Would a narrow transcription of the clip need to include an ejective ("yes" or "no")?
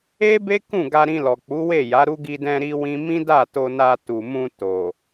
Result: no